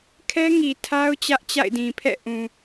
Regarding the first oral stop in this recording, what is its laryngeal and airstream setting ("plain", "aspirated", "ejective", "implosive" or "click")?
aspirated